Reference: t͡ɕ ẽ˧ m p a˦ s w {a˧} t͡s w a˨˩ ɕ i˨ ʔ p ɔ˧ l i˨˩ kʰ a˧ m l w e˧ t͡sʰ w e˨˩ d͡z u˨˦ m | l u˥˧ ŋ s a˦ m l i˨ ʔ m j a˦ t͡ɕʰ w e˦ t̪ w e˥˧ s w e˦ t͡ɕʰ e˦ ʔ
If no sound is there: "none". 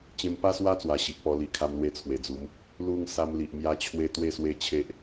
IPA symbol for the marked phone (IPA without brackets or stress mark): a˦